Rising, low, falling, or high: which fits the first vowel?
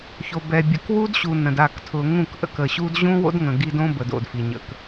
low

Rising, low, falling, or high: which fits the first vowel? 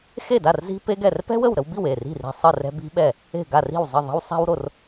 falling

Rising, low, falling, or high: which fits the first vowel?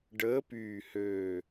rising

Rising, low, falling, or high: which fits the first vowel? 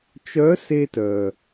rising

